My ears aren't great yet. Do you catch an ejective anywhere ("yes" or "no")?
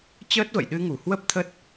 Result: no